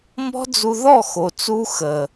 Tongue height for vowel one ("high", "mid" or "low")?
mid